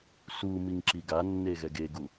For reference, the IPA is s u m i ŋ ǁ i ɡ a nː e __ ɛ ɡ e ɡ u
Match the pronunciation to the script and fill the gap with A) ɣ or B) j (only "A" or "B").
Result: A